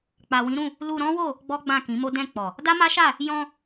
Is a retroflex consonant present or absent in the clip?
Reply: absent